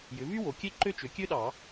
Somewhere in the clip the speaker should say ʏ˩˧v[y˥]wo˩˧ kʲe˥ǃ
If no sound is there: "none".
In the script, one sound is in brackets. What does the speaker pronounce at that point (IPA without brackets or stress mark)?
y˥